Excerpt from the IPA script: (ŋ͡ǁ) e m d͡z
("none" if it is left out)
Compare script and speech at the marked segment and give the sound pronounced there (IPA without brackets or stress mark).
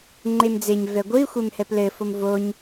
ŋ͡ǃ